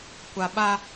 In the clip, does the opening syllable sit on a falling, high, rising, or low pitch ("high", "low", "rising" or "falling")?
low